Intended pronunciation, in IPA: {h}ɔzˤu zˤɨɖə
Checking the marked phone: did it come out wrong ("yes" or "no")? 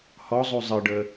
no